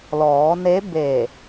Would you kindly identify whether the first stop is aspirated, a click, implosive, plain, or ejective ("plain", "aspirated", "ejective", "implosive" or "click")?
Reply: plain